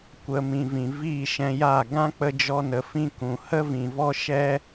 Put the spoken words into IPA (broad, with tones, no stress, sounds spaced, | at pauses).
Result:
kʷ ə˧ m ĩ˨ v ĩ˨ v iː˦˨ ʃ ɛ̃˧ j aː˦˨ ɡ ã˦ k͡p ə˧ d͡ʒ ɔ˦ n ə˧ f ĩ˦ k ũ˨ h ə˦ v ĩ˨ v ɔ˦ ʃ ɛ˦